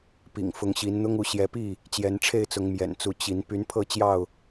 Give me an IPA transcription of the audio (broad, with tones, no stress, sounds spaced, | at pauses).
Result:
p ḭ˨˩ ŋ f ʊ˨˦ ŋ ɕ i˨˦ n n̪ ʊ˦ ŋ u˨˦ ɕ j ɛ˨˦ p i˥˨ | t͡ɕ j ɛ˨˦ n ʈ͡ʂʰ e˥˨ ɪ̯ t͡s ʊ˨˦ ŋ m j ɛ̰˨˩ n t͡s u˨˦ t͡ɕ i˨˦ n p y˨˦ n pʰ ɤ˥˨ t͡ɕ j ɑ˥˨ ʊ̯